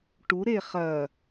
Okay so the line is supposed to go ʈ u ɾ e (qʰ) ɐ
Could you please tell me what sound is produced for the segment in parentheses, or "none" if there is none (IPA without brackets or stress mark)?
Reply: χ